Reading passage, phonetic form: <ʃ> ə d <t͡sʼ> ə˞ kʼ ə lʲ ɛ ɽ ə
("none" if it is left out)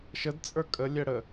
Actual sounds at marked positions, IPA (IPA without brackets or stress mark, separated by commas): ʃ, t͡sʼ